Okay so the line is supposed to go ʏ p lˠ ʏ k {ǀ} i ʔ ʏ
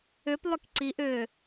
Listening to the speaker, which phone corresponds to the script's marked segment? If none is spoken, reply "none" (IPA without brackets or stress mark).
ǀ